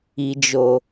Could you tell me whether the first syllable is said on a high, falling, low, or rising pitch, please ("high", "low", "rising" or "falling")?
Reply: low